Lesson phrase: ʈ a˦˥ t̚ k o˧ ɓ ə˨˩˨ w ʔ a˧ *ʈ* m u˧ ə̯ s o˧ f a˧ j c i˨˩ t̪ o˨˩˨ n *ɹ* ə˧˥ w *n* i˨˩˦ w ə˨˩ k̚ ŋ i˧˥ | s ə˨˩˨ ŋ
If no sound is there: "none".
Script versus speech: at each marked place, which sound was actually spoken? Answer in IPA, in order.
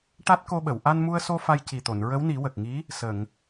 n, ɹ, n

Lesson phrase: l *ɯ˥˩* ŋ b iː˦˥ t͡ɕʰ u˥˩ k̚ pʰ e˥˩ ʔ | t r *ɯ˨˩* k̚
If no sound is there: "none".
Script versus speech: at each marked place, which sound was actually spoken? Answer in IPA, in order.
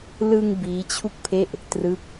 ɯ˧, ɯ˥˩

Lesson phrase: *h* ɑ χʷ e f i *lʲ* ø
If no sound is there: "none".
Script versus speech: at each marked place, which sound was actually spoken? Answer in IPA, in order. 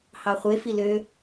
h, l

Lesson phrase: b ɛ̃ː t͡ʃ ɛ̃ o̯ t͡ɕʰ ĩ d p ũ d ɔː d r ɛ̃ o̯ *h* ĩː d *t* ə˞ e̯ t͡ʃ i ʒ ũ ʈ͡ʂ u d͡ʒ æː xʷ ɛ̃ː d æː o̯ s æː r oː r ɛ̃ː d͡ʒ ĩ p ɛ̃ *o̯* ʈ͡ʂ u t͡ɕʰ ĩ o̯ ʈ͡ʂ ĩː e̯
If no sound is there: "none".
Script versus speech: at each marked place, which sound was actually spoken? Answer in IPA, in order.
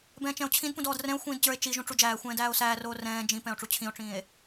xʷ, t͡ɕ, o̯

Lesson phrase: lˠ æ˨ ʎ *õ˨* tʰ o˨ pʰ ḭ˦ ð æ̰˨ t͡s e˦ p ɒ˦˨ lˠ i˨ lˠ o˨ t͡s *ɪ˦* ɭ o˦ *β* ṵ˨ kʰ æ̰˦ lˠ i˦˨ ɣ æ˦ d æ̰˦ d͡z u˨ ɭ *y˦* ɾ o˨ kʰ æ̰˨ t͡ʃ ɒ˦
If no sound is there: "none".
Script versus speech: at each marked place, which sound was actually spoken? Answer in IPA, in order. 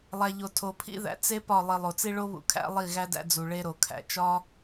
o˨, i˦, β, e˦

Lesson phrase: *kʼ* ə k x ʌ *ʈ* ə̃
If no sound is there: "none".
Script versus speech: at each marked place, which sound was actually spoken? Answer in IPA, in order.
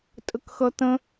tʼ, t̪

